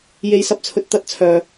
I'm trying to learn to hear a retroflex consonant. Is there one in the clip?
no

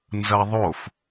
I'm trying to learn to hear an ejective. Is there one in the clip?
no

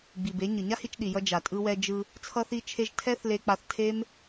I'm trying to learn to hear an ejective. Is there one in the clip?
yes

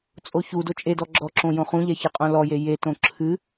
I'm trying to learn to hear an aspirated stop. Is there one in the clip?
yes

